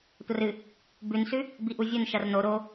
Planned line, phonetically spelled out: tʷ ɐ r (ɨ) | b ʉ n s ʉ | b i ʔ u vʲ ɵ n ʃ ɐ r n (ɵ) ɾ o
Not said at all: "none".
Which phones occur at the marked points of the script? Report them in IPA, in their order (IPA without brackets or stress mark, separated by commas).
ɨ, o